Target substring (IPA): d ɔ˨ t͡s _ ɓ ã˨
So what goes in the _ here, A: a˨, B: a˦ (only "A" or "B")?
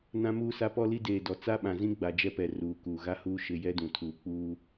B